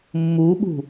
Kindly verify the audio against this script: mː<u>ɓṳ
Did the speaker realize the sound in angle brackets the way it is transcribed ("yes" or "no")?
yes